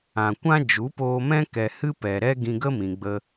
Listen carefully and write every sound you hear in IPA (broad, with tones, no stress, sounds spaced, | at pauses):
ã˨ kʷ ã˦ d͡ʒ u˨˦ p oː˧ m ɛ̃˦ k ɛ˨ h ɨ˦ p ɛ˨ ɾ ɛ˦ ɡ ĩ˧ ɡ ə˦ m ĩ˨ ɡ͡b ə˧